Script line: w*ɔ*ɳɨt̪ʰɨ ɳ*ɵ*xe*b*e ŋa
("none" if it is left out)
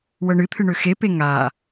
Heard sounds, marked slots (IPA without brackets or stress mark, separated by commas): ɤ, ø, p